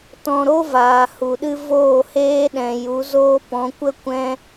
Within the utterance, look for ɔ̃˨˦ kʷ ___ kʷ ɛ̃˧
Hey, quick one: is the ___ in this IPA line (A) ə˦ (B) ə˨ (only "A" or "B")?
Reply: A